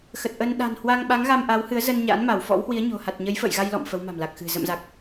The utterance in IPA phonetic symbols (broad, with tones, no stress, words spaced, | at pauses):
xə˨˩t̚ʔə˧n ɗa̤˨˩nhwa˧ŋɓa˨˦ŋ ɣa˧mʔa˨˦whɨ˨˦ə̯zə˧n ɲa̰˧˥nma˧˩wfɔ̰˧˥whwi˨˦ə̯ ɲo̤˨˩ ha˨˩t̚ ɲə˨˦jfə̰ː˧˨j ɣa˧jlɔ̰˧˨m fə˨˦wma̤˨˩mla˨˩k̚xɨ̤˨˩ zə̰˧˨mza˨˩k̚